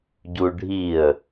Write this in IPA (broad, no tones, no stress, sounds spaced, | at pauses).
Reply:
ɟ u ɖʱ i ə̯